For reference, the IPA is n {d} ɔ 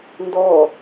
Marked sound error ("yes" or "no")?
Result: no